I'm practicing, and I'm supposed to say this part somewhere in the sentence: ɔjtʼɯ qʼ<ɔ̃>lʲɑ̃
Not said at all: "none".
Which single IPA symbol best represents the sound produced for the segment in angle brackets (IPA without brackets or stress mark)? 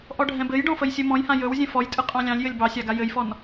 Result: ɑ̃